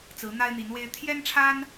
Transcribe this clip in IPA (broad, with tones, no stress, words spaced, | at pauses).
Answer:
t͡sɹ̩˧˥n̪a˥ɪ̯n̪i˧˥nwe˥ɪ̯ t̪ʰjɛ˥nʈ͡ʂʰa˥n